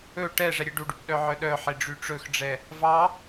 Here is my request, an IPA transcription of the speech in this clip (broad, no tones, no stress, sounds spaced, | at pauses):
ɵ ʈ ɛ ʐ ɛ ɾʲ e ɖ u ɖ y p ɗ œ ʕ œ ɗ œ ħ e ɖ͡ʐ y ʈ͡ʂ ɵ x ɖ͡ʐ ɛ | v ɑ